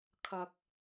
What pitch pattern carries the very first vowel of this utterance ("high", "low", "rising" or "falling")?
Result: low